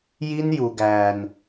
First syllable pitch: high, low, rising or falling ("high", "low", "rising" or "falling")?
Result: high